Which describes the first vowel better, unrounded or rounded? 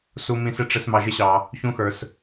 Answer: rounded